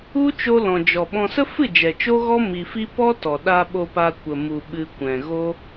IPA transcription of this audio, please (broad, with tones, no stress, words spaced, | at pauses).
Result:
u˦ t͡ʃo˦ lɔ̃˨d͡ʒɔ˨ɓɔ̃˧ sə˦fɨ˦˨d͡ʒɛ˨ t͡ʃo˦ɣɔ˦ mi˧fi˦ pɔ˦tɔ˨ɗa˧ ɓo˧pa˧kʷə˨ mu˨ ɓɨ˨ kʷɛ̃˨ɣo˦